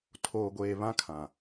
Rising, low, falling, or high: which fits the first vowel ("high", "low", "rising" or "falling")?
low